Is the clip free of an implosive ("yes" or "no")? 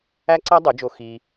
yes